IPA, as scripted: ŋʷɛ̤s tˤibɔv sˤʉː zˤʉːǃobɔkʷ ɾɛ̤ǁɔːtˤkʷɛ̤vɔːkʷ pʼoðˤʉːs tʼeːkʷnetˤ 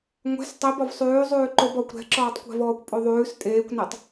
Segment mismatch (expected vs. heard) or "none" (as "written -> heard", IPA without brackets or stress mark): none